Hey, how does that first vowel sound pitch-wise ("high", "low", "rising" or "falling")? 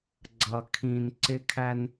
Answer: low